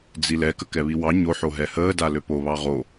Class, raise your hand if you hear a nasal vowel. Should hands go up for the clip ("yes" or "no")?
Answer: no